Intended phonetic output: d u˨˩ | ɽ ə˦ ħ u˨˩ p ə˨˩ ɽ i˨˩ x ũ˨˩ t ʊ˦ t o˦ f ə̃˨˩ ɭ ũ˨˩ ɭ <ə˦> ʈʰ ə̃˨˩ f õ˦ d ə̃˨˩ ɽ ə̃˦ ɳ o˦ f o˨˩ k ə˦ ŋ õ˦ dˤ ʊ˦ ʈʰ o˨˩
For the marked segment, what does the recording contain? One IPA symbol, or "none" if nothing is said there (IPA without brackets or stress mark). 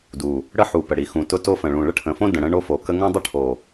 ə˦